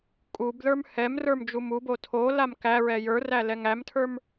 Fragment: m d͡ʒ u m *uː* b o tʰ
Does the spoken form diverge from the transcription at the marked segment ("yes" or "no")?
yes